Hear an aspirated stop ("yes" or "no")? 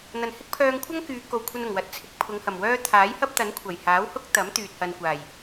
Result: yes